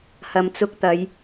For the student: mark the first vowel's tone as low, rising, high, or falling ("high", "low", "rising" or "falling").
low